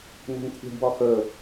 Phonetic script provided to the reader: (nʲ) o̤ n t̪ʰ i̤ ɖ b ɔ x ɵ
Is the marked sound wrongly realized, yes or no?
yes